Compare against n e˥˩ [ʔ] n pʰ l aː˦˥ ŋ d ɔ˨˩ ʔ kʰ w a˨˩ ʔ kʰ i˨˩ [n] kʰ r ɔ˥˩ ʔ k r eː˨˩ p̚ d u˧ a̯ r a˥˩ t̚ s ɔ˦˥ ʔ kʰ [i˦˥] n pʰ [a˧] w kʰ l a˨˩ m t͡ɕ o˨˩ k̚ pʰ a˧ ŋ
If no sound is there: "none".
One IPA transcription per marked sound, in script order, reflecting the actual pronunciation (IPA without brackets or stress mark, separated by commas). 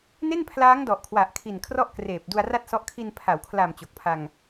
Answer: none, n, i˧, a˩˦